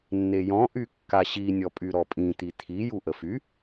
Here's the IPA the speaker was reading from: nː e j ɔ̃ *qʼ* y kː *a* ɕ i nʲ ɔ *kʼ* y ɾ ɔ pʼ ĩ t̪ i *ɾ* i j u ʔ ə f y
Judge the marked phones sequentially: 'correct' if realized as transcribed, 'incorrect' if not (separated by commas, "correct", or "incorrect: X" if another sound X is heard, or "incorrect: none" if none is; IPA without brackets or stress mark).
incorrect: ʔ, correct, incorrect: pʼ, incorrect: t̪ʰ